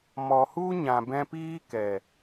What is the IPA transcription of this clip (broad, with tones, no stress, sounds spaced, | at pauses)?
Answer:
m ɔ˨ h u˦ ɲ ã˨ b ɛ̃˧ p iː˦ k ɛ˨